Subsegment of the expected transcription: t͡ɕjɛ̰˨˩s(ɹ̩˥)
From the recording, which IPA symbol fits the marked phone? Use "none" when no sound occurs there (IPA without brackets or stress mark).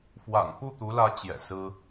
ɹ̩˥